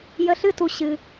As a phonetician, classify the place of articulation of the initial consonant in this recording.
palatal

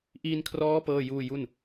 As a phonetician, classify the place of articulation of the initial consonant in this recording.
glottal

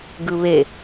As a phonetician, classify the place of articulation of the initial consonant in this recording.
velar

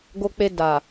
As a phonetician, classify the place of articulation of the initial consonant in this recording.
velar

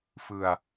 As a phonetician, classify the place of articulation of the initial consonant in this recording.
labial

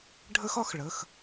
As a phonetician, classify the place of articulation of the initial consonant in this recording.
retroflex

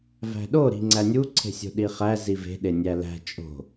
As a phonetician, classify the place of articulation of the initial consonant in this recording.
labial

